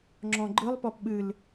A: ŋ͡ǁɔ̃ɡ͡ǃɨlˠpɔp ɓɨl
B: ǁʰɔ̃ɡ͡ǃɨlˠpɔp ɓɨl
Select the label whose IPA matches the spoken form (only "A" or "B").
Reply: A